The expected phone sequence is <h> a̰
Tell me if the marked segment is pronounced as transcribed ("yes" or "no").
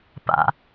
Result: no